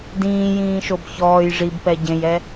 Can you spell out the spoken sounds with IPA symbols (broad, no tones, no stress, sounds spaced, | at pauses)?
d ĩː j ĩː ʃ o b ç ɔː j ʐ i b p ɛ ɟ ẽ j ɛ